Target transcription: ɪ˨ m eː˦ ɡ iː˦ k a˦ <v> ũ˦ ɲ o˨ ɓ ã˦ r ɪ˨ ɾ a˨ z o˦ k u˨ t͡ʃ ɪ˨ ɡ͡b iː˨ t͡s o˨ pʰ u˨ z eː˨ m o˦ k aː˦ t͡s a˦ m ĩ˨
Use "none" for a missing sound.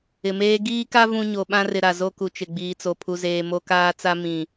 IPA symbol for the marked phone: v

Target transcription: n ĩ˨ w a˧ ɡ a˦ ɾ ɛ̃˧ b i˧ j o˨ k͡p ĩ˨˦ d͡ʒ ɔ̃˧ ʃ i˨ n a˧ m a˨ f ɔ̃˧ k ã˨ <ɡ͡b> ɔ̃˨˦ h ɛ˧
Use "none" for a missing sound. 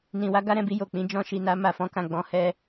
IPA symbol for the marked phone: ɡ͡b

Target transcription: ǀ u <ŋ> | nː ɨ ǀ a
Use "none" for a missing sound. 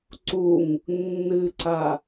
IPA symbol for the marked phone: ŋ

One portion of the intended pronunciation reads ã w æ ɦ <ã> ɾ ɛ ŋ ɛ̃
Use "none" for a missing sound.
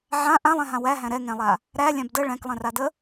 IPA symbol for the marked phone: æ̃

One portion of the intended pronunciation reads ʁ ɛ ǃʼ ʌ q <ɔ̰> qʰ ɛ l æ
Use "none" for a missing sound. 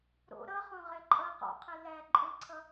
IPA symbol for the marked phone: ɔ̰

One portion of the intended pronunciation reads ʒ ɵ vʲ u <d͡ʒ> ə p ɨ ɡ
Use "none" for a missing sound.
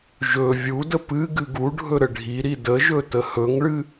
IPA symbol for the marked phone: d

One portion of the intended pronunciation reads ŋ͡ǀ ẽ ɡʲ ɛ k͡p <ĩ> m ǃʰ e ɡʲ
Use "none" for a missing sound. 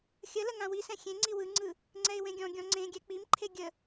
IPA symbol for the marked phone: i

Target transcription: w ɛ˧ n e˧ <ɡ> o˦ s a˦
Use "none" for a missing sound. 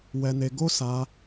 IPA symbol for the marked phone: ɡ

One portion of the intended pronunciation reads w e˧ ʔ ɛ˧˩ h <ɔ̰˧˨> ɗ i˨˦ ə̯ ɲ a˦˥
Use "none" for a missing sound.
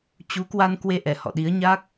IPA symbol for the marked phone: ɔ̰˧˨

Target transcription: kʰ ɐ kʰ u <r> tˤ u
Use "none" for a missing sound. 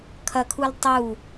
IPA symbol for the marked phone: l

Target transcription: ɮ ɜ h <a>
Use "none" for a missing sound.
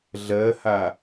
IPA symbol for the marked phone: a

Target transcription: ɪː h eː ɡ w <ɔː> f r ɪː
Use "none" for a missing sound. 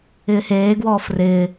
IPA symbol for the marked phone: ɔː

